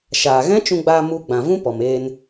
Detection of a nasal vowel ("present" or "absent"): present